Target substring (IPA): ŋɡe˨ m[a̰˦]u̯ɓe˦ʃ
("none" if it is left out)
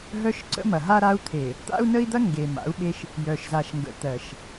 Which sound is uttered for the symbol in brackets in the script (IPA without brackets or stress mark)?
a̰˨˦